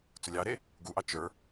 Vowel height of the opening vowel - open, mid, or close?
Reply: close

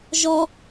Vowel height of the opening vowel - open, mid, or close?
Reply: mid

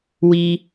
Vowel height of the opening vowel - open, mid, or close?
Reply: close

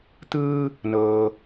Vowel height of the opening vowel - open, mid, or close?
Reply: close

